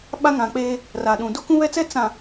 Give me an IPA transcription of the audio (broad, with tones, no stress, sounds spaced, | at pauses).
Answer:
ɓ a˦ ŋ ã˨ k͡p eː˦ | r a˨ ɗ ũ˨ d o˦ k ũ˦ β ɛ˦ t͡s ɛ˦ t͡s ã˨